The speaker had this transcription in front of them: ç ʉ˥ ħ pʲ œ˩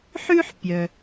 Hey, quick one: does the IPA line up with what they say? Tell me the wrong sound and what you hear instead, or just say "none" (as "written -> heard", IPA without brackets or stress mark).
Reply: ç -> ħ